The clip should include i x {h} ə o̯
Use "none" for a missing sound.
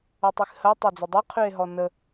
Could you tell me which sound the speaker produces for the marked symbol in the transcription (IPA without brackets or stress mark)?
h